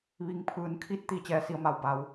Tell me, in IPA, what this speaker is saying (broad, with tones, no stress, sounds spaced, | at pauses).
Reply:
ʋ i˩˧ ŋ pʰ ɯː˩˧ n kʰ i˧˥ t̚ t̪ i˧˩ t͡ɕ ɛː˧ s i˧ ə̯ m a˧ w b a˩˧ w